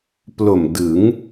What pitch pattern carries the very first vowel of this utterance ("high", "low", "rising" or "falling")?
low